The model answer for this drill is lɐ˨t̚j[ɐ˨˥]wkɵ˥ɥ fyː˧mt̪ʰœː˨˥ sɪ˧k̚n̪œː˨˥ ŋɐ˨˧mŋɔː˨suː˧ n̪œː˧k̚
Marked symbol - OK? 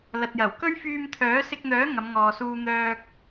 no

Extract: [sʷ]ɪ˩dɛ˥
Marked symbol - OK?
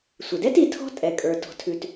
yes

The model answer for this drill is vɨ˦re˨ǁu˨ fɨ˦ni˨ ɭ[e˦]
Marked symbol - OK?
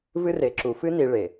no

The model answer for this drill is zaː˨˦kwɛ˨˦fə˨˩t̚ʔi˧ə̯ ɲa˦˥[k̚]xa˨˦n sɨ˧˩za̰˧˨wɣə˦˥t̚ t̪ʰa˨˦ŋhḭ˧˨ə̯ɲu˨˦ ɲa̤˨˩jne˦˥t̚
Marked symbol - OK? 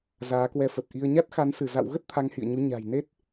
no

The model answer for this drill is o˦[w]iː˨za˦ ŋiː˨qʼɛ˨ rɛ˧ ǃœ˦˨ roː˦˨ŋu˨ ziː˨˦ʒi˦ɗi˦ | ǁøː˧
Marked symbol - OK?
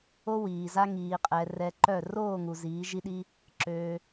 yes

